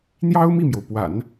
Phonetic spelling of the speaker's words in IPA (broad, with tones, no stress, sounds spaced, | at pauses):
n̪ j ɑ˥ ʊ̯ m i˥˩ m j o˩ ʊ̯ p w a̰˨˩˦ n